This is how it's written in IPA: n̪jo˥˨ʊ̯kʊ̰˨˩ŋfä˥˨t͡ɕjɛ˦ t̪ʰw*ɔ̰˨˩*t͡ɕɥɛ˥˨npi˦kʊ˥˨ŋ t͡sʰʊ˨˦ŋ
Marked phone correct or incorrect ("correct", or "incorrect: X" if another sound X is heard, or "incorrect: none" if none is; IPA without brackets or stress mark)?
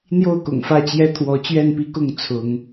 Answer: incorrect: ɔ˨˦